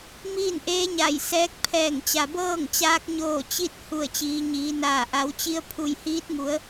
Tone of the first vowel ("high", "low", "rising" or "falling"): falling